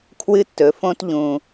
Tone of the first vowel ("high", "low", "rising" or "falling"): high